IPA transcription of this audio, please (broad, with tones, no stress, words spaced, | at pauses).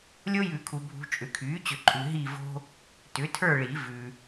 lʲo˦jʉ˨˩˦kʰu˨ bʱṳ˨ t͡ʃʼʏ˩˥kʰyː˩˥t͡ɕʏ˨ǃʼʉ˨ ɦi˦˨vo̤˦ | tʏ˩˥tʰə˞˦˨ɭi˨˩˦ vʉ˨